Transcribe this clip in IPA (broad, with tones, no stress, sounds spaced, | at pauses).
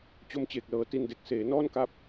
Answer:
t͡ɕ o˧ m t͡ɕ eː˨˩ k̚ l ɤː˩˦ t i˧ n d e˨˩ k̚ s eː˩˦ n ɔː˥˩ n k a˦˥ p̚